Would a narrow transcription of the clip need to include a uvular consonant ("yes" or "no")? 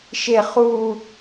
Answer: yes